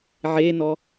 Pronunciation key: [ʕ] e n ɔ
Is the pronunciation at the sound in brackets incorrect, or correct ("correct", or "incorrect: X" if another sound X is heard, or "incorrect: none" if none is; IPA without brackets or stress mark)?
correct